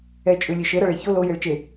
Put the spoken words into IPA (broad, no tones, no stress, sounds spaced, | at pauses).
ɛ t͡ʃʼ ʉ lʲ e ʃ e ɾ ʌ ɭ e ç o l o j e ɭ t͡ʃ e